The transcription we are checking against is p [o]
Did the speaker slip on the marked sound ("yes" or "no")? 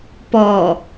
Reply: yes